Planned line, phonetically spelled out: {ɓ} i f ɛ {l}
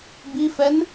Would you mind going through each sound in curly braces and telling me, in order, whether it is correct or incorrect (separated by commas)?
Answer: incorrect, incorrect